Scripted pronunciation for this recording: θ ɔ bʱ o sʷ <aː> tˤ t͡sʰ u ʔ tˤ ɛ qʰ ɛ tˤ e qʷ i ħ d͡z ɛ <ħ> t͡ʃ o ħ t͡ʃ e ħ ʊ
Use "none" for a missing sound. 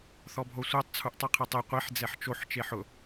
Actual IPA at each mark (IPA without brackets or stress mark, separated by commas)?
a, ħ